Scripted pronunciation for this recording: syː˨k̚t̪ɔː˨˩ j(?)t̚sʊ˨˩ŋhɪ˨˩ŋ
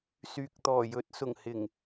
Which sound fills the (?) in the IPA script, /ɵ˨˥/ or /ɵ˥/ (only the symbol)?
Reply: ɵ˨˥